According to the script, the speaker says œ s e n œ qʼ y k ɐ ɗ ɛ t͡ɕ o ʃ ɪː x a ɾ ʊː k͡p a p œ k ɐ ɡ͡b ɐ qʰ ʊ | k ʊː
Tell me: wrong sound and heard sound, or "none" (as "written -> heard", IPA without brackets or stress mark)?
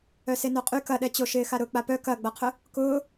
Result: none